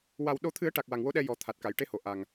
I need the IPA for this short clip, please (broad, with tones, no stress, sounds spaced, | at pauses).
w a˨˩ w ɗ o˨˩˦ t̪ʰ ɨ˨˩˦ ə̯ ʈ a˨˩ k̚ w a˨˩ ŋ w o˧˥ ɗ ɛ˧ j ɔ˨˩˦ t̪ʰ a˨˩ t̚ k a˨˩˨ j ʈ e˧˥ h o˨˩˨ ʔ a˨˩ ŋ